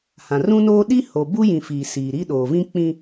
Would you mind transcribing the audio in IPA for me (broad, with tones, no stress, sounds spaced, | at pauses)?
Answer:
h ã˨ r ũ˦ n oː˦ ɗ i˦ h o˨ b u˦ j ĩ˨ f iː˨ s iː˨ ɾ i˦ ɗ oː˨ v ĩ˦ k͡p ĩ˦